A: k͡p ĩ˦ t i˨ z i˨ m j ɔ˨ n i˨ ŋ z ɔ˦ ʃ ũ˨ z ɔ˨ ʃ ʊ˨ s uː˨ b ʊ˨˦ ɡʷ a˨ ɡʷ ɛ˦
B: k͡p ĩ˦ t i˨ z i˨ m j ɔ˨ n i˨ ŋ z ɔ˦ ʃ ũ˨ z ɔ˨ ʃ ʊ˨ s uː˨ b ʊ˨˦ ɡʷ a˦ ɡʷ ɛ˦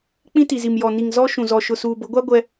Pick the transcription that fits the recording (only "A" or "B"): B